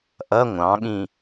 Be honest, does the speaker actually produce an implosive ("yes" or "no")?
yes